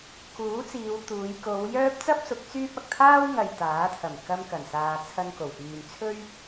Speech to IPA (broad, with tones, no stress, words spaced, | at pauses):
kuː˨˥t͡siː˨˧w t̪uː˨˧j ko˨˧wjœː˥p̚ t͡sɐ˥p̚sʊ˨˥k̚ t͡syː˥p̚ɐ˨k̚ t̪ʰaː˥wŋɐ˨j t̪aː˨˥t̪ʰɐ˨˩m kɐ˧mkɐ˨˩nsaː˨ t͡sʰɐ˧nko˨˩wfyː˨nt͡sʰɵ˥ɥ